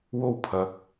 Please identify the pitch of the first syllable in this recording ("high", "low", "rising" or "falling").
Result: high